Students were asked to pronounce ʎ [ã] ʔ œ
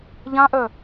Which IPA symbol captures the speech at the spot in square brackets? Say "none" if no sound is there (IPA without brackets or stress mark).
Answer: ã